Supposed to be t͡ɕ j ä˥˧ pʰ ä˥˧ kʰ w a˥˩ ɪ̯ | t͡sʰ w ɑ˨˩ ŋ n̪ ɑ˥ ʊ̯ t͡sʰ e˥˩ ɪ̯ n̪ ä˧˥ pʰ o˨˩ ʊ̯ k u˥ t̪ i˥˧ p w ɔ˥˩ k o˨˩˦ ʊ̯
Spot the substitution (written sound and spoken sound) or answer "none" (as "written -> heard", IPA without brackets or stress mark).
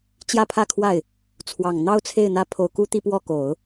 none